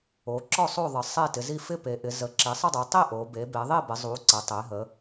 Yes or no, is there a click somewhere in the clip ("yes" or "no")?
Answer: yes